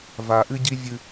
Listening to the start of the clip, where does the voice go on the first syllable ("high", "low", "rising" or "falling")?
high